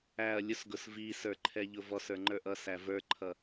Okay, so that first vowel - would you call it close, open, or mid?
open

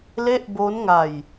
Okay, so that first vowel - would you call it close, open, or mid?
mid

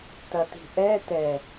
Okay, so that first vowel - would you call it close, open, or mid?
open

